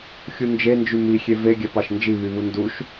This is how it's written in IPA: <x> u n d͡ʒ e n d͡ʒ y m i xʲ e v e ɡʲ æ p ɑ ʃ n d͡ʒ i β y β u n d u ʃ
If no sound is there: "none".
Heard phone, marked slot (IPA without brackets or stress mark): xʲ